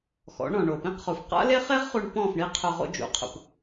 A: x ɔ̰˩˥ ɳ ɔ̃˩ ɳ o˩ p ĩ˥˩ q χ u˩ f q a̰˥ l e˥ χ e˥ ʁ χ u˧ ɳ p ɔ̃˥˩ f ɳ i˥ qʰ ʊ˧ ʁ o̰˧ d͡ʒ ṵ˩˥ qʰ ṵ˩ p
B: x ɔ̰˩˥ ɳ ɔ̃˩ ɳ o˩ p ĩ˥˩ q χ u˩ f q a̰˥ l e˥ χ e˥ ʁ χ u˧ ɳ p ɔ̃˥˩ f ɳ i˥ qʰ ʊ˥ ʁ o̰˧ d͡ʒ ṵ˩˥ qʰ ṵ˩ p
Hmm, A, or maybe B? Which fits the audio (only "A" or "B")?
A